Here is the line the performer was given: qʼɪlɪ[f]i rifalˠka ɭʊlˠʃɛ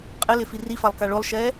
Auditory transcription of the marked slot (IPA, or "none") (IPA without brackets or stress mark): f